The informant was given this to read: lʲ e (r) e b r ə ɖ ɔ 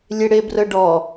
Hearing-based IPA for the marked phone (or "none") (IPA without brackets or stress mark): ɽ